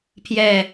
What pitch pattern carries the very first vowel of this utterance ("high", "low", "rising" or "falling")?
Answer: low